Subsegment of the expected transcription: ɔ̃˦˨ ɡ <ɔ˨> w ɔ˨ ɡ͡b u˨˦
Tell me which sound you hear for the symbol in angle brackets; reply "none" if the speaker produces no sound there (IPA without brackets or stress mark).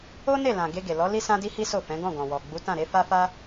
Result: ɔ̃˨